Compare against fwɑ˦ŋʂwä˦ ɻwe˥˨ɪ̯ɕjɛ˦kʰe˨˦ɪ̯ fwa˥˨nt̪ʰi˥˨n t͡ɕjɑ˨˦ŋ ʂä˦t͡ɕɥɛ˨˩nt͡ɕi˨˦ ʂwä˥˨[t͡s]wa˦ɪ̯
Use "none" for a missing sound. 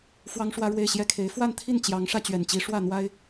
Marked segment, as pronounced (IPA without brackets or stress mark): n̪